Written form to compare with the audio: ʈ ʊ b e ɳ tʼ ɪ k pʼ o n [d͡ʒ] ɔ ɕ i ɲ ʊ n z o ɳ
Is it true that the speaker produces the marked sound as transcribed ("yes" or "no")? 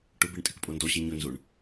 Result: no